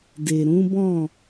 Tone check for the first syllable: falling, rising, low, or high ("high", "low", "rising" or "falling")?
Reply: low